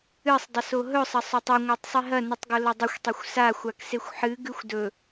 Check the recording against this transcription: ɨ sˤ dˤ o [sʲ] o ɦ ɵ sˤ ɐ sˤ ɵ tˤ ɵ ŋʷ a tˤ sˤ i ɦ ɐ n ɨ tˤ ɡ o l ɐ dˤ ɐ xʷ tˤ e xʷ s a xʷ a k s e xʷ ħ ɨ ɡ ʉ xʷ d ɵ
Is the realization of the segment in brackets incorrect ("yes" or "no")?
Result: yes